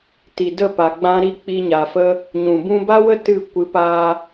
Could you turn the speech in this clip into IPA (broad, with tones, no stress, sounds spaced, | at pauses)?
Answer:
t i˨ d ə˦˨ p a˨ ɡ͡b ã˧ ɾ i˦ k͡p i˧ ɲ a˨ f ə˦ | ɲ ũ˨ b ũ˧ b a˦ w ə˦ t ɨ˦˨ kʷ ɨ˨˦ p aː˧